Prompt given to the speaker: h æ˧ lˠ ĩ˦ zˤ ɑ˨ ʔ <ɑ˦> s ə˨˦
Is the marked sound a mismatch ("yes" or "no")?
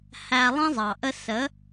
yes